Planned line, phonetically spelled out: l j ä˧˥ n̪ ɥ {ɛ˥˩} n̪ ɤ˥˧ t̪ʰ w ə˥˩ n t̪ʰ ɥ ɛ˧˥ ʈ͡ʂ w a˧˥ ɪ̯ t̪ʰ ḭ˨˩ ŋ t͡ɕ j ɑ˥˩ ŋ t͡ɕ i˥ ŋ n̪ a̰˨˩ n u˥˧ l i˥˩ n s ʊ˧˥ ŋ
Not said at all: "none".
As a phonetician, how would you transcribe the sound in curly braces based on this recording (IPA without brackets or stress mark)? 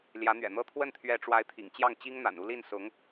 ɛ̰˨˩